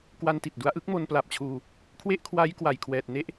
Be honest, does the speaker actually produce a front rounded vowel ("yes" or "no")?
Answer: no